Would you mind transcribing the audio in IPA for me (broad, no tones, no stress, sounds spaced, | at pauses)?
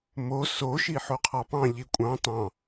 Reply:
m o s o ʃ i ħ o qʰ ɑ p ɑ̃ ʎ i kʷʼ ɑ̃ t ɑ̃